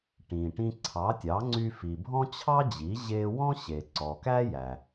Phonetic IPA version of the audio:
ʈ ĩ˩ ʈ ĩ˧ ǀʰ ɑ˩˥ tʲ ɑ˩˥ ŋ͡ǀ y˧ f i˩ bʱ ɔ̃˥ t͡ɕʰ ɑ˥ d͡ʑ i˩˥ ʑ e˥ w ɔ̃˥ ɕ e˩ ǀ ɔ˩ k æ˥ j æ˩

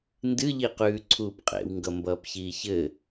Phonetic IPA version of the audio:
n d ɨ ʎ i q ʉː ǀʰ uː p qʼ ḛ w ŋ ɡ ʌ m b ʌː p ç iː ç ɘ

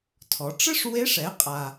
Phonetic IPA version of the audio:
tʰ ɔ˩˧ ʈ͡ʂ ɘ˥ ʂ w e˧˥ ʂ ɛ˩˧ qʼ a˩

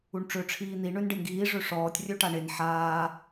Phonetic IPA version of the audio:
u ɳ ʈ͡ʂ ø ʈ͡ʂʰ iː n̪ i ɳ ø n ɖ e n ɡ iː ʐ ø ʂ ɔː tʲ rʲ ø ʈ a ɳ e n ħ aː

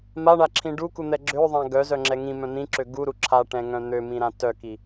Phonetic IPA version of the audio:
m a ɳ a ǁʰ ĩ ɖ u k u n̪ ɛ ɡ͡ǁ ø ðˤ ã ɡ œ z œ ŋ͡ǁ ɛ ŋ ĩ m œ̃ n̪ ĩ ǁ ø ɡ u ɾ u ǁʰ a ʈ ɛ̃ ŋ œ̃ n̪ ø m ĩ ɾ ã t œ k i

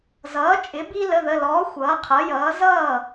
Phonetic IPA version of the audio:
z ʌː˩˥ t͡ʃʼ ɪ˩˥ b i˧ l ə˩˧˩ ð ə˩˧˩ l ɔː˩˥ xʷ ʌː˩˥ qʰ ʌ˩˥ j ʌː˩˥ z ʌː˥˩

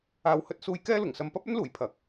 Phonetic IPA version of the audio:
aː˨ w h ɵ˧ t̚ s uː˧ j k ɛː˥ l ʊ˨˩ ŋ s ɐ˧ m p ɐ˥ p̚ ɵ˥ n l uː˨˩ j pʰ ɐ˨˥ k̚

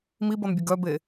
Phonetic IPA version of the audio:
m i b ɔ n bʲ ə ɡ œ b e

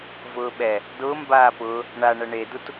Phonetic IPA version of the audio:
v ʊː ɓ ɛ | d ʊː m b aː p ʊː | ɳ a ɳ ɐ ɳ e d u t

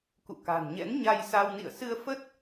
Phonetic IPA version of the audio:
k ṵ˧˨ k a̤˨˩ n ɲ ɛ̰˧˥ n ɲ a˧ j s a˧ w n ḭ˧˨ ə̯ s ɨ˧ ə̯ f ə˦˥ t̚

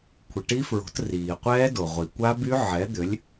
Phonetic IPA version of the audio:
kʷʰ ə˩ ʈ i˦˥ f ɹ o̤˩˥ t r iː˩ qʷ ɛː˦˥ d o˩ ʁʷ i˩ kʷ a˦˥ b y˦˥ ʕ ɛ˩˥ d̪ ʏ˩˥ lʲ

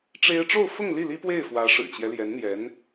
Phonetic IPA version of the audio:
ʈ͡ʂ e˥ ɪ̯ ʈ͡ʂ o˥˧ ʊ̯ f ʊ˥˧ ŋ l i˥˩ l i˥ p w e˥˩ ɪ̯ f w ä˧˥ ʂ ɻ̩˨˩ t͡ɕ j ɛ˦ l j ɛ˧˥ n n̪ j ɛ˧˥ n

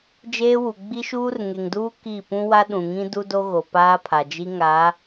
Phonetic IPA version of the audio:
d͡ʒ eː˦ w u˨ ɡ͡b i˦ ʃ uː˦ r ŋ e˨ ŋ d uː˦ k i˦˨ p ũ˦ w a˦ ɗ ũ˨ ŋ ĩ˦ d u˦ d o˦ ɣ o˨ p aː˦ pʰ a˨ d͡ʒ i˦ ŋ a˨˦

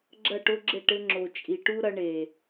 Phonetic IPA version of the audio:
ɡ͡ǁ ɐ˦˨ ʈ o˦ ɡ͡ǁ ɘ˦˨ ʈ ɘ˧ ŋ͡ǁ o˨ t͡ʃʼ i˨ ʈ u˦ ɾ ɐ˧ ɳ e˨

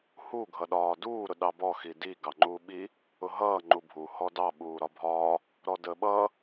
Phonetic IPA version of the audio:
h u ɡʱ ʌ ɗ ɒː d uː ɾ ʊ ɗ ɑ b ɔ x i d i ɡ ɑ ŋ͡ǃ uː ɓ i | ʊ ɦ ʌː ŋ͡ǃ u bʱ u h ɔ d ɑ ɓ uː ɾ ɒ bʱ ɒː | ɾ ɔ d ə ɓ ʌ

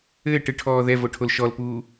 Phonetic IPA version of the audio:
ɘː ʈ ɨ ʈʰ ɔː ð ɛ v o ʈʰ o l ʃ ɔ l p uː

